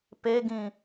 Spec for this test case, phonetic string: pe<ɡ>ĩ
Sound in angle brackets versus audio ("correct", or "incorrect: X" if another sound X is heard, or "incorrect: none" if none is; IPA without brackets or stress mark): correct